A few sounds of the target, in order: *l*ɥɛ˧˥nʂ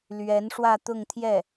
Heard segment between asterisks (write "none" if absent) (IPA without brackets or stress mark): l